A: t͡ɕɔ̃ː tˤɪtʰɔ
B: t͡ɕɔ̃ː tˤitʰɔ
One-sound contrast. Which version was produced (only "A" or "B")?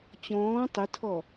A